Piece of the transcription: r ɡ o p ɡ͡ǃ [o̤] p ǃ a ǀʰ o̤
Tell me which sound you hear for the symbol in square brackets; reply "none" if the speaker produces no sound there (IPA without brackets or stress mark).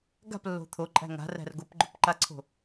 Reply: o̤